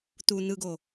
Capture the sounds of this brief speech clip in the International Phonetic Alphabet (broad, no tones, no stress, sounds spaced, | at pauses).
t̪ u n̪ ɯ ɡ o